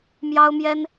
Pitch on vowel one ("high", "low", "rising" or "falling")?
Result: high